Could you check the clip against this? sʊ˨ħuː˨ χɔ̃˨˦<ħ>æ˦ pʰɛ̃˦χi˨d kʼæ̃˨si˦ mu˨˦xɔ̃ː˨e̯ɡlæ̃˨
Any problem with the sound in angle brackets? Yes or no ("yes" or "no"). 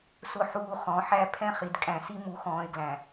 no